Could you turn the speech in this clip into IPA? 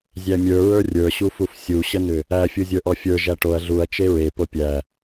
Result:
zʲ æ mʲ ə˞ ɹ ə˞ rʲ ə˞ ɕ u f u f sʲ u ɕ ə n ʏ | æ fʲ u zʲ ə˞ ʔ ɔ fʲ ə˞ ʒ æ ʈ o ɐ̯ ɮ u ɐ̯ t͡ʃ e ɹ e p o pʲ æ

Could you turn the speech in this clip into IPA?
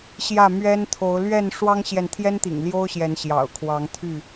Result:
ɕ j ä˥˨ m ɥ ɛ˦ n t̪ʰ o˨˦ ʊ̯ l ɥ ɛ˥˨ n ʂ w ɑ˦ ŋ ɕ j ɛ˨ n t̪ʰ j ɛ˦ n t̪ ḭ˨˩ ŋ l j o˦ ʊ̯ ɕ j ɛ˨˦ n ɕ j ɑ̰˨˩ ʊ̯ kʰ w ɑ˨˦ ŋ t̪ʰ y˥˨

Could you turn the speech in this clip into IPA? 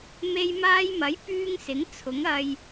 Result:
m e˧ j m aː˧ j m ɐ˨˥ j p yː˥ ŋ s ɪ˨˥ ŋ t͡sʰ ʊ˨˥ ŋ ɐ˧ j

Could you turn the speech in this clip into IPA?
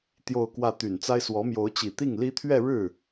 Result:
t̪ j o˥˧ ʊ̯ k w ä˥˩ t̪ y˨˩ n t͡s a˥ ɪ̯ s w ɔ˧˥ m j o˧˥ ʊ̯ t͡ɕ i˨˩ t̪ i˥˩ ŋ l i˥ t̪ʰ ɥ ɛ˥˧ ɻ ɻ̩˥˩

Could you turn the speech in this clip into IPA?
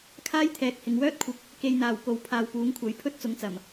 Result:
kʰ aː˥ j t̪ʰ ɛː˨ k̚ h ɪ˨ ŋ w œː˥ t̚ kʷʰ ɪ˨ k̚ | k e˨ j n̪ aː˨˩ w k o˨ w pʰ aː˨ w p uː˨˥ ŋ kʷʰ ɐ˨˥ j pʰ ɵ˥ t̚ t͡s ʊ˨˥ ŋ t͡s ɐ˨˩ m

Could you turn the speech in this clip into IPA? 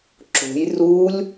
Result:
ǁ o̤ j r u lʲ

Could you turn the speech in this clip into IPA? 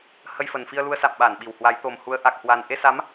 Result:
h ə˧ j f ə˨˩ n f i˧ ə̯ l u˧ ə̯ s a̰˧˨ m ɓ a˧˩ n ɓ i˧˩ w h w a˨˦ j t̪ o˨˩ m h u˨˦ ə̯ ʔ a˨˩ k̚ h w a˨˩ n ʔ e˧ s a˨˦ m

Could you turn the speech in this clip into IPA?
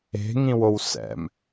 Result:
e̤ ŋ ĩ w o w s ɛ̰ m

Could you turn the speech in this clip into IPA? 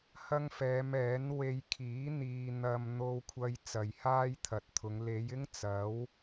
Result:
h ɐ˥ ŋ f ɛː˨˧ m ɛː˨˥ n w e˧ j kʰ iː˨˥ n̪ iː˧ n̪ ɐ˧ m n̪ o˧ w kʷʰ ɐ˧ j t͡s ɐ˨ j h aː˥ j t̪ʰ ɐ˨ t̚ t̪ʰ ʊ˨˧ ŋ l e˨˧ j ɪ˥ ŋ t͡s ɐ˨˥ w

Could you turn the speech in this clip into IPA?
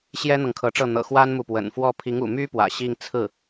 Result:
ɕ j ɛ˥ n̪ ɤ˨ ŋ kʰ ɤ˧˥ ʈ͡ʂ ɤ˥˩ n̪ ɤ̰˨˩ x w a˥ n m u˨ p w ə̰˨˩ n f w ɔ˥˩ pʰ i˧˥ ŋ ṵ˨˩ m y˥ p w ä̰˨˩ ɕ i˥˧ ŋ t͡sʰ ɹ̩˥˩

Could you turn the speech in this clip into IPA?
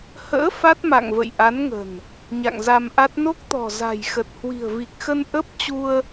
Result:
h ə̰ː˧˥ f a˦˥ t̚ m a̰˧˨ ŋ v ə̰˧˨ j ʔ a˨˦ n ŋ ə̤˨˩ n | ɲ a̰˧˨ ŋ z a˧ m ʔ a˦˥ t̚ n o˦˥ k̚ t̪ ɔ̤˨˩ z a̤˨˩ j x ə˨˩ t̚ h w i̤˨˩ ə̯ v i˨˩ k̚ x ə˧ n ʔ ə˦˥ p̚ t͡ɕ u˧ ə̯

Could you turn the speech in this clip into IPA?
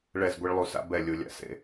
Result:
ɭ ɛ˦˨ z ɡʷ e˦ ɭ lˠ u˨ s a̰˦ b ɛ˦˨ lʲ u˨ lʲ a̰˨ s ḛ˨

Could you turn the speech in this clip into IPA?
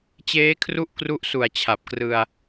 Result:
t͡ɕ eː˦˥ kʰ r u˥˩ ʔ k r u˦˥ ʔ s u˨˩ a̯ t͡ɕʰ a˨˩ p̚ k r ɯ˧ a̯

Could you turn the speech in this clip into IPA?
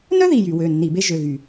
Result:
n œ˥ ð i˩˧˩ j y˧˩˧ w ø˩˧˩ nː i˧˩˧ b e˥ ʒ ø˩˧˩ ɣ y˧˩˧

